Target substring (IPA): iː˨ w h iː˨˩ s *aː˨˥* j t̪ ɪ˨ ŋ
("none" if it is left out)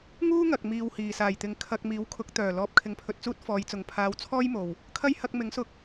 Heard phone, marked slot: aː˨˩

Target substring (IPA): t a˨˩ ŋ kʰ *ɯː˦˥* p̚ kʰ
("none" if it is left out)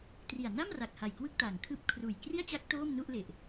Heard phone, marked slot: ɯː˦˥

